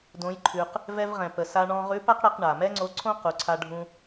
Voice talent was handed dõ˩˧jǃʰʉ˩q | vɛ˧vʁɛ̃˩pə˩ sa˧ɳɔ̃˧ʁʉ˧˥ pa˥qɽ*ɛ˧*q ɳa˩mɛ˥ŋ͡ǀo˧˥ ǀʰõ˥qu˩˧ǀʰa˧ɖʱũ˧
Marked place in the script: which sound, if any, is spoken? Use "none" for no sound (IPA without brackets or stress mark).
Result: ɛ˧